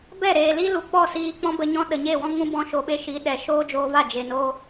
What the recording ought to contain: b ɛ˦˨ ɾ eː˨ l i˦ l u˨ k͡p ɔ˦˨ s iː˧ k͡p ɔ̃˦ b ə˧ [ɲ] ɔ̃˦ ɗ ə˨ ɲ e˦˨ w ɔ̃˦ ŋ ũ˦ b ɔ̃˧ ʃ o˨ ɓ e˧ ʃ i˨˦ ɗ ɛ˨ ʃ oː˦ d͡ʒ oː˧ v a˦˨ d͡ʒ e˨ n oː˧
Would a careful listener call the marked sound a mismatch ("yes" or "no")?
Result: no